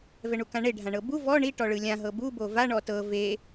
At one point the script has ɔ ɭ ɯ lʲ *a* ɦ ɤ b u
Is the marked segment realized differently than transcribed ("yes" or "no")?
yes